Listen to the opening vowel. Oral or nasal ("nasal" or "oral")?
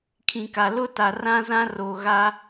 nasal